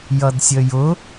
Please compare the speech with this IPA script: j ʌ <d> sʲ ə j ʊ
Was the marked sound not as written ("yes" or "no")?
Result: no